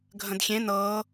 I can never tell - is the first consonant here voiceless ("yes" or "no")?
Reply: no